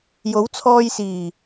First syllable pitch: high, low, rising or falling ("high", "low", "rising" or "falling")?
rising